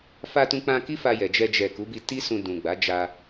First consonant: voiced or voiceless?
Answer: voiceless